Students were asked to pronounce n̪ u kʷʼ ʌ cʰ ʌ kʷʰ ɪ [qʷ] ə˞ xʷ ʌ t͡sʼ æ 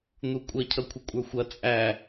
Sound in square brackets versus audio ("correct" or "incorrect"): incorrect